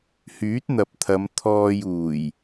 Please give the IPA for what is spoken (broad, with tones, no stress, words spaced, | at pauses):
hyː˨˥t̚n̪ɐ˨p̚t̪ʰɐ˨˧m t̪ʰɔː˧juː˨˩j